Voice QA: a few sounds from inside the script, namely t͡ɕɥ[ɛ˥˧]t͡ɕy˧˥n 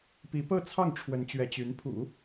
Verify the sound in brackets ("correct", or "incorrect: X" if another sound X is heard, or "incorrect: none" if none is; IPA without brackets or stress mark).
incorrect: ɛ˧˥